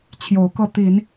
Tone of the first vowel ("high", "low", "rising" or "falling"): rising